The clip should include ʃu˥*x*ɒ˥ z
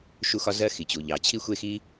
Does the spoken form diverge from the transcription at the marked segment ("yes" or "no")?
no